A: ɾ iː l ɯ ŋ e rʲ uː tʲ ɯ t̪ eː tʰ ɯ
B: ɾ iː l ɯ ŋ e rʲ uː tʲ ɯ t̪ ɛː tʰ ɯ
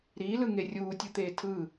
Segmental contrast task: A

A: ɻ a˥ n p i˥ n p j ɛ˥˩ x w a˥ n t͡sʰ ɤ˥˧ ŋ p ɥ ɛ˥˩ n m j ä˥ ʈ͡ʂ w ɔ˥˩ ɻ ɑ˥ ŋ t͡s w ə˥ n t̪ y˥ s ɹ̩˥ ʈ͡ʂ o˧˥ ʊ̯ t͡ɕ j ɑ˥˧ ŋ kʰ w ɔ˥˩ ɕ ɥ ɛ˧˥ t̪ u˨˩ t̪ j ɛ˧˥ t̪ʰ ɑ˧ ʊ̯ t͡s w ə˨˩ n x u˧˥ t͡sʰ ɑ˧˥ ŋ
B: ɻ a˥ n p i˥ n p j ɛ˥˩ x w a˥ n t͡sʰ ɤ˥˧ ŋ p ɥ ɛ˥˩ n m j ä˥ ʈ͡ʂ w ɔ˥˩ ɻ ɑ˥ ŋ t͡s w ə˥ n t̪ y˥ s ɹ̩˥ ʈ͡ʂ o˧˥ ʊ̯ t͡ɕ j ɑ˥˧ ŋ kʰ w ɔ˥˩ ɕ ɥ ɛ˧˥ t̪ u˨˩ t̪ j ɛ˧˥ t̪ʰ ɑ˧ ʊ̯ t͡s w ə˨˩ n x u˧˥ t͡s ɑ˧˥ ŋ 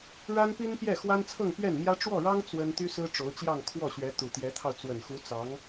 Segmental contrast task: B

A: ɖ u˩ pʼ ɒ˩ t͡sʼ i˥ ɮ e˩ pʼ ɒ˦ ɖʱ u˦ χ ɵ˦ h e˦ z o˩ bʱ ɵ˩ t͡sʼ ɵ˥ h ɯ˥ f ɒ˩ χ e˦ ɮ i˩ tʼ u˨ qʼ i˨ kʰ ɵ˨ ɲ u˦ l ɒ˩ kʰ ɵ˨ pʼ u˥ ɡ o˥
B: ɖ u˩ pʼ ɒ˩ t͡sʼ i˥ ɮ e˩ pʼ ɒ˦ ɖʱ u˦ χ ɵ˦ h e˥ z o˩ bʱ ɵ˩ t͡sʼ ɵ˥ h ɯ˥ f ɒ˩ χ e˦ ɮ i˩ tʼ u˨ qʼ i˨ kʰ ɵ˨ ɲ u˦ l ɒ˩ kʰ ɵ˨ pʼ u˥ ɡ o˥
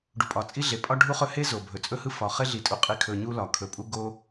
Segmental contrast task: B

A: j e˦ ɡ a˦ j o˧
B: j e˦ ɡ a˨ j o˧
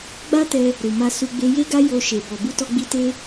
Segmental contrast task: A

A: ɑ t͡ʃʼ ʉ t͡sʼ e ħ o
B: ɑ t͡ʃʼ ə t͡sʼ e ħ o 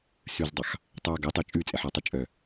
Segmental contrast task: A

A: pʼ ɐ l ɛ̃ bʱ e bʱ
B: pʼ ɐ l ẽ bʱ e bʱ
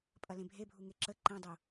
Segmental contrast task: B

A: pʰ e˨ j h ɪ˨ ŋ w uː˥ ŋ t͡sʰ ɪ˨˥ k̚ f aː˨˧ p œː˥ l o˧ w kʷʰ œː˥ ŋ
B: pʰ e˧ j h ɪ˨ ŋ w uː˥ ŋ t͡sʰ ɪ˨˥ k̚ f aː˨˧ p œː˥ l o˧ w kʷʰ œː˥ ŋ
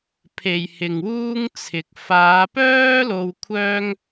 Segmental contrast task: A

